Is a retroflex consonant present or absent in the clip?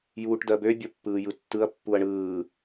present